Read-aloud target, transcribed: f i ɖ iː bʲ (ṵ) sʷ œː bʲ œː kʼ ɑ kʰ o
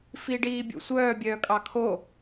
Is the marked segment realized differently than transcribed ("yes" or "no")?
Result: no